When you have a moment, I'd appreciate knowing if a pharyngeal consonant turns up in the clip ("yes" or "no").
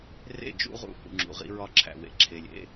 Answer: no